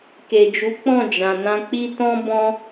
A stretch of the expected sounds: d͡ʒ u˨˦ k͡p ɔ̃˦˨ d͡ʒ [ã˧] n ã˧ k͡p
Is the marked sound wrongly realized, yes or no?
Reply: yes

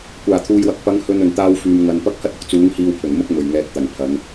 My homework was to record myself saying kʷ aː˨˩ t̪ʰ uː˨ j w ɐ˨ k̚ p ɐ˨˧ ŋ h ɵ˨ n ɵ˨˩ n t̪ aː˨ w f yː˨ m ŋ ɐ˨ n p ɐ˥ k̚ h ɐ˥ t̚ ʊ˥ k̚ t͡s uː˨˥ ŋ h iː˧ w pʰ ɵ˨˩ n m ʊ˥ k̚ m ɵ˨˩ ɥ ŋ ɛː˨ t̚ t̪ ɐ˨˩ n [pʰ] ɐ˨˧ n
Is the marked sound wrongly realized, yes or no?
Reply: no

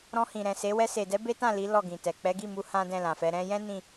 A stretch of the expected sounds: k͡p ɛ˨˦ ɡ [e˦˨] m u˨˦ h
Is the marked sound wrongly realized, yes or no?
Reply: yes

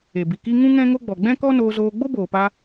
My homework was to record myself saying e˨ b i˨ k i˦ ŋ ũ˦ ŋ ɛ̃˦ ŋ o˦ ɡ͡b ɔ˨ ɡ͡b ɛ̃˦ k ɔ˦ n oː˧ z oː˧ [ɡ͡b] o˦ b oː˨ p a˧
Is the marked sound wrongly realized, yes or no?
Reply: no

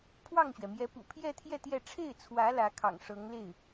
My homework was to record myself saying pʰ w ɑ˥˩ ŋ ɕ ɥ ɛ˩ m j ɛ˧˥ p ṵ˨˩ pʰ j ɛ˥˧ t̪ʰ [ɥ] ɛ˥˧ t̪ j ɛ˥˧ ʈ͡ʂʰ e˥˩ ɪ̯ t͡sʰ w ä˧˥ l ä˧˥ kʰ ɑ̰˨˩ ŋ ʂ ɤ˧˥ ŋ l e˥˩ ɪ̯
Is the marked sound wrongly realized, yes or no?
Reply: yes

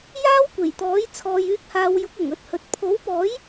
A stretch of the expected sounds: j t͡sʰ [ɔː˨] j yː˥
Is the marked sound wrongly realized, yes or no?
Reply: yes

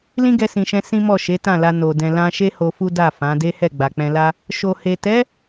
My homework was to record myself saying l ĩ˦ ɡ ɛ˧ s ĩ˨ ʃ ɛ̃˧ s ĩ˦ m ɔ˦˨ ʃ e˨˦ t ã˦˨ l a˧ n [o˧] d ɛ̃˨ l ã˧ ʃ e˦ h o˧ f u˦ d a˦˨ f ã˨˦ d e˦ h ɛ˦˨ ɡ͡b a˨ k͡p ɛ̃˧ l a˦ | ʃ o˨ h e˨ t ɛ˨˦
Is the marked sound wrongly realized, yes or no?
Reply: yes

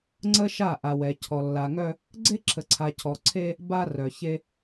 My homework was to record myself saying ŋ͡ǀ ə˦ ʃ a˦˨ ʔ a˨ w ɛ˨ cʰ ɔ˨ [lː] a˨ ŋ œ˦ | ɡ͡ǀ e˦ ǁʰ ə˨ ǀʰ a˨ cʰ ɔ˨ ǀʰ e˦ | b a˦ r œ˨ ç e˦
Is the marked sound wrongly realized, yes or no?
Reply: no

